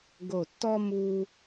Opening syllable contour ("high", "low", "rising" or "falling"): low